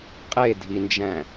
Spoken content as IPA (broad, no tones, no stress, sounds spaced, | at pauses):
qʼ e dʱ i n d͡ʒ æ̃